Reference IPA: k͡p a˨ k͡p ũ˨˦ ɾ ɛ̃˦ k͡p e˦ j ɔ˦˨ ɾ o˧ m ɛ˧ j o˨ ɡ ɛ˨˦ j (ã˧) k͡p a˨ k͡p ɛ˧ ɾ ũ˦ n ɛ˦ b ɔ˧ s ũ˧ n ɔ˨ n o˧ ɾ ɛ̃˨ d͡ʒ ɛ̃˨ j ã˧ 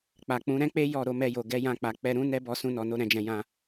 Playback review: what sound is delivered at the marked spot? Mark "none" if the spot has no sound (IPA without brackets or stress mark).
ã˧